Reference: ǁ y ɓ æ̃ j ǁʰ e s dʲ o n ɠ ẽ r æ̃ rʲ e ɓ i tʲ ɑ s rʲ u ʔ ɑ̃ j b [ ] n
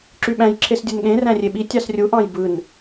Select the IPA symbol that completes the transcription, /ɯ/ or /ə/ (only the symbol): ɯ